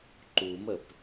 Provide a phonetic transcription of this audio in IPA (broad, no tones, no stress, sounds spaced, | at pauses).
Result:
ǃ u m ə p